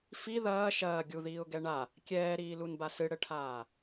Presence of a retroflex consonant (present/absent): present